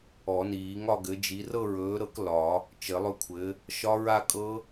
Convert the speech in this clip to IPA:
ɔ˨˩˦ n iː˨˩˦ ŋ ɒ˥˧ ɡ ɘ˨˥ d͡ʒ i˨˥ r ɤ˥˧ ɹ ɵː˨˥ ɾ ɤ˨˥ k l ɒ˨˩˦ | t͡ʃ ɘ˨˩˦ lˠ ɵ˦˥ kʷʰ ɘ˨˥ | ʃ ɒ˦˥ ɹ a˥˧ kʼ ɤ˦˥

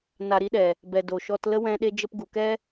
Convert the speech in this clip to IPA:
n a˨ ɾ i˧ ɗ ɛ˨ | b ɛ˨ d o˨ ʃ ɔ˧ t l ə˦ w ɛ̃˧ ɗ e˧ d͡ʒ ə˧ p ɡ u˨ k ɛ˦

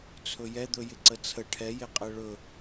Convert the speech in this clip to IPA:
t͡sʰ ɵ j ɛ d̪ ɵ j ɪ ǀ ə t͡sʰ ə ʈʰ ɛ j e qʼ ɛ ɭ ɵ

